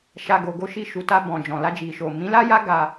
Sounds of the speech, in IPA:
ʃa˧ɡo˧ɡo˦ ʃi˧ʃu˨ta˧ bɔ̃˨ d͡ʒɔ̃˨la˧ d͡ʒi˨ʃo˨ mĩ˨˦la˦ja˦ ɡa˧

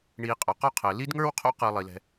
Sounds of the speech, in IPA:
ɳiː˨qʼɔ˩qɔ˦qʰəː˩ li˦dŋə˞˦wqʰo̰˦ qɯ˨ lˠi˩lɛ̤˨

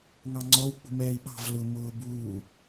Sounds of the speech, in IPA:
ŋɑŋ͡ǀɔw k͡pṳmɛːi̯ɓɑ̤v lʊ mʊːbuː

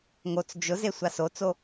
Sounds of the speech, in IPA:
ŋot͡s d͡ʒʊze sʷasot͡so

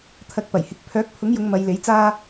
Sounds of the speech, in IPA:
t̪ʰɐ˨k̚ pɐ˨˩jhɪ˨˥k̚ pʰœː˨˥k̚pʰʊ˨˥ŋjʊ˨˧ŋ mɐ˨˧jle˨˥jt͡saː˥

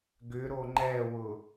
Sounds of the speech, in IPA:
ɡʏɾo ŋ͡ǃɛwʊ

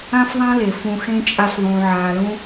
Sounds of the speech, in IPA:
ã˦fðˤã˦le˨ fũ˨xẽ˧ t͡ʃʼa˧sðˤũː˨ʕaː˨lũ˧

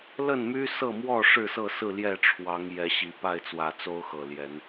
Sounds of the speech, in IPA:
lə˥˨nmy˦sɤ˥˨mwɔ˥˨ ʂɻ̩˥˨sɤ˥˨sɹ̩˥˨ ljɛ˥˨ʈ͡ʂʰwɑ˨˦ŋ jɛ˨˦ɕi˨˩ pa˥˨ɪ̯t͡swä˨˩t͡so˦ʊ̯ xɤ˨˩ljɛ˨˦n

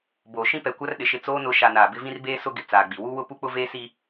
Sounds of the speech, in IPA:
boː˨ʃĩ˦ pɛ˨kʷa˦rɗɪ˨ʃɪ˦˨ t͡soː˦nʊ˨˦ ʃa˨ naː˨bɪ˦ vĩ˦rbeː˦ sʊ˦ ɡɪ˨t͡saː˨ɡ͡bi˨ wu˦wʊ˦ pu˦k͡pʊ˦veː˦siː˦

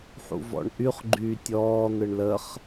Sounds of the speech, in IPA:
ħṵvɔ̰ɳʔyχ ɡ͡ǃyːtʲɔː n̪ɯɳləχ

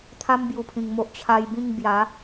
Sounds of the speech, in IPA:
t̪ʰa˦mbju˨˩pʰĩ˨˩ŋmo˦ʔ t͡ɕʰa˧jbĩ˥˧ŋ bja˨˦

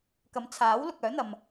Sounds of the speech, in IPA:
kɐ˨˥mt͡sʰaː˨˥wlʊ˨k̚ œː˨˥n̪ɐ˨m

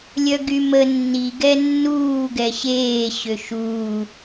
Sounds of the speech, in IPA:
lʲœɡymə nːi ɡɛnːuː ɡɛɕeː ɕøʃuː

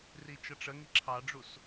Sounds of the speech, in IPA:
rit͡ʃʌʈ͡ʂəŋi ǁʰɑɖ͡ʐus

